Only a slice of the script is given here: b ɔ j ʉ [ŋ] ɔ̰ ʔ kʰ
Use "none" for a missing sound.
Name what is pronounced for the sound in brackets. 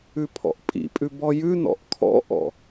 n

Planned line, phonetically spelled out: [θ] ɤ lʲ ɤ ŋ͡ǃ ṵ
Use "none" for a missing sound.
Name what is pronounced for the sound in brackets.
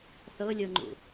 θ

